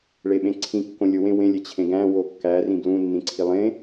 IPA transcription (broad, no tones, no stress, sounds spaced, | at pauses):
ɭ e ɓ ẽ ǀʰ ĩ kː õ lʲ o w ẽ w ẽ lʲ e t͡ɕʰ ẽ ɡ æ̃ w o kː æ r ĩ b l ũ nː ĩ ǀʰ i lˠ ẽ